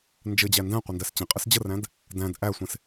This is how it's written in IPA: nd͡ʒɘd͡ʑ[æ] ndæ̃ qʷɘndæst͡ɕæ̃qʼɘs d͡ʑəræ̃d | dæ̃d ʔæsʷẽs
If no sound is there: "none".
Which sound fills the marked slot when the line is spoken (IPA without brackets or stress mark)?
æ